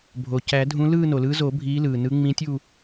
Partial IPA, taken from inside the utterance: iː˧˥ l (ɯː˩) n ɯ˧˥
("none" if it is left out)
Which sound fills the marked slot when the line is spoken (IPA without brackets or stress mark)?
ɯː˩